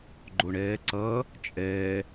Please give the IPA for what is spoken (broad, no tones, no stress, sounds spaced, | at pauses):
ɡ͡ǃ o ɳ ɛː ǀ ʌː | t͡ʃʼ ɛː